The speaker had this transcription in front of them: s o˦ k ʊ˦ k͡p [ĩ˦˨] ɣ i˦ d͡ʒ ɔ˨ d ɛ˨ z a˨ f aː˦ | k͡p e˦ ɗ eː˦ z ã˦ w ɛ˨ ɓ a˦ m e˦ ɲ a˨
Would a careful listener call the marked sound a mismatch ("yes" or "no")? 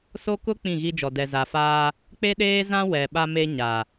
no